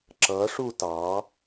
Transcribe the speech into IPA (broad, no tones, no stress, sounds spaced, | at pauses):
ǁ ʌ ʂ u t ɑ